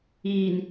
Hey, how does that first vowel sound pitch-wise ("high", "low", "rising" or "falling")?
low